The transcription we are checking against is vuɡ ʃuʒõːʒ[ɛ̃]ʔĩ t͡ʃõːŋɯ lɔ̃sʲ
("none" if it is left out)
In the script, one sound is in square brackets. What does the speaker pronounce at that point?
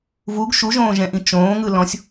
ɛ̃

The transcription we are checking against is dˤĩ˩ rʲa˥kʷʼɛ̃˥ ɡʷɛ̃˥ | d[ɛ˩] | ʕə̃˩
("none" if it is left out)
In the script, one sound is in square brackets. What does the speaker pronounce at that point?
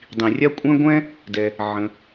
ɛ˩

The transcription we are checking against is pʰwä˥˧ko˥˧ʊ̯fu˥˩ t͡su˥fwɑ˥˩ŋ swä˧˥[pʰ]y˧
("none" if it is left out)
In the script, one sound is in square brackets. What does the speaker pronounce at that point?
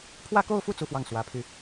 pʰ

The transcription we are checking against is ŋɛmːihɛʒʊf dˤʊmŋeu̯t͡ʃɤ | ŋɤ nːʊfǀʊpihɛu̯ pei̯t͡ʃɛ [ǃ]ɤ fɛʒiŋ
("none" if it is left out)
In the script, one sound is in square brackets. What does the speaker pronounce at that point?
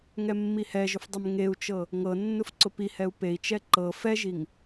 ǃ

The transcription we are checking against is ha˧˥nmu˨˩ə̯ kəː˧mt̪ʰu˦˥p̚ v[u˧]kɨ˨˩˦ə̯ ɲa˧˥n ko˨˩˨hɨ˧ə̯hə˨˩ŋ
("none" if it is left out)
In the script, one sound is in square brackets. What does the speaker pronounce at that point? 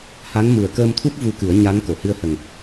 u˧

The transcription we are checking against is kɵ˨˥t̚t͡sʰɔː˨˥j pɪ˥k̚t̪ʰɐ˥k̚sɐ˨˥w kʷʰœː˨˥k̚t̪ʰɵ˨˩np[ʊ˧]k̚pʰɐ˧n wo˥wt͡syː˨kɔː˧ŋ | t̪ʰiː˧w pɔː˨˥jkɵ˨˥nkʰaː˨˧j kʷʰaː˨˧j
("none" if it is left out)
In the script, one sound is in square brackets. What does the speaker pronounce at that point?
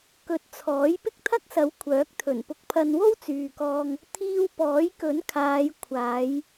ʊ˧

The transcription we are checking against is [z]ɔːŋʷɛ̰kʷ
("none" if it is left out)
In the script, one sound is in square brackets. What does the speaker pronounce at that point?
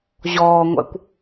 ʑ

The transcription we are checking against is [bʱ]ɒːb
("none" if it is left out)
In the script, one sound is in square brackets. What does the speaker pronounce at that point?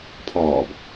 pʰ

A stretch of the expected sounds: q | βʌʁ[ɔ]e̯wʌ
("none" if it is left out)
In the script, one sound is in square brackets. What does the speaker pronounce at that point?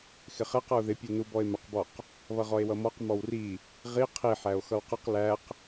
ɔ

